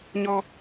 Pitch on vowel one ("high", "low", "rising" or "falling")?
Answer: high